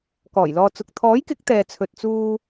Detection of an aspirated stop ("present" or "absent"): present